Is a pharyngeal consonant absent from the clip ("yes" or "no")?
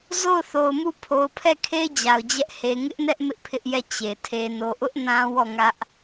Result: yes